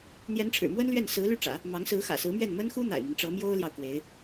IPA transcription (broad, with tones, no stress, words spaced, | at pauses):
n̪jɛ˧˥nʈ͡ʂʰɻ̩˨˩mwə˥nlɥɛ˥˩n sɹ̩˧˥ly˥˩ʈ͡ʂä̰˨˩˦ | mɑ˧˥ŋsɹ̩˧˥ xä̰˨˩sɹ̩˧˥mɥɛ˥˩n mə˥nxu˥ n̪a̰˨˩ɪ̯mi˦n ʈ͡ʂɤ˧˥mjo˥ʊ̯ljɑ˨ʊ̯ kwe˧˥ɪ̯